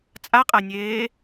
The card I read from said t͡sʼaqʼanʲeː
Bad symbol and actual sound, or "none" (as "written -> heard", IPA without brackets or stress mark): none